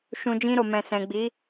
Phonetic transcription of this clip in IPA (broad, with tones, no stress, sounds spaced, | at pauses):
ʃ ũ˨ d͡ʒ ĩ˧ ɾ o˨ m ɛ̃˨ s ɛ̃˨ ɡ͡b i˨˦